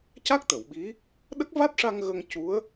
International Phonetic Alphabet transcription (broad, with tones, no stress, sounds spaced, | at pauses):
c a˦˥ k̚ t̪ ə˨˩˨ w ɓ i˧˥ | ɗ ə˦˥ k̚ v a˦˥ t̚ ʂ a˧ ŋ ɣ ə˧ ŋ c u˧˥ ə̯